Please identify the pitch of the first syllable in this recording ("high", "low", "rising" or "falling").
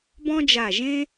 high